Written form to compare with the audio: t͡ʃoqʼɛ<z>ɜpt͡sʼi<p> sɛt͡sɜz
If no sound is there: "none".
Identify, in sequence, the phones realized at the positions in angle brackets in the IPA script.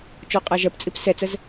ʒ, p

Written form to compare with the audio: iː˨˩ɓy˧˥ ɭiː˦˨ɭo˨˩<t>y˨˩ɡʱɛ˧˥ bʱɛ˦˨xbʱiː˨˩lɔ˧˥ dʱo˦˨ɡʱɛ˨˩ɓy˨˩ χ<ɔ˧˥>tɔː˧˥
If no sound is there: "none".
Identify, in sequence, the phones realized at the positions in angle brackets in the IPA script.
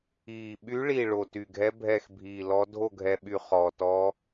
t, ɔ˨˩

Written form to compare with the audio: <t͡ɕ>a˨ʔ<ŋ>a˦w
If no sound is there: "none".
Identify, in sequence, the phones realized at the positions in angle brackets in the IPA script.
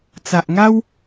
t͡s, ŋ

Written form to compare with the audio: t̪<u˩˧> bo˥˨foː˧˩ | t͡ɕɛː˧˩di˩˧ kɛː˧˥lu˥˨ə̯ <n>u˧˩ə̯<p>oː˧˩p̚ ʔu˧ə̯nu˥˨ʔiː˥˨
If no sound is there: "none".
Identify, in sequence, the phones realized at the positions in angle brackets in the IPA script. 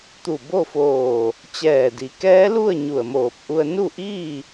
u˧˩, ɲ, m

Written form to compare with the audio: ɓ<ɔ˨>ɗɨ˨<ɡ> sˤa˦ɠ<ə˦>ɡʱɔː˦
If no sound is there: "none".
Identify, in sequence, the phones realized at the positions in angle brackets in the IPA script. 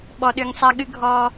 ɔ˨, ŋ, ɨ˦

